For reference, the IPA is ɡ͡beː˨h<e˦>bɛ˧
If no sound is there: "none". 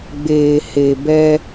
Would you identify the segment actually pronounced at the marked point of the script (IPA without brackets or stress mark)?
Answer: e˨